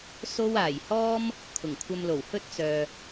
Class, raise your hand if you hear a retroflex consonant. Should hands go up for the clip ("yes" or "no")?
no